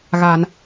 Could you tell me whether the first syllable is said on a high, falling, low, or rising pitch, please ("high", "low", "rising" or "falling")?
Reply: low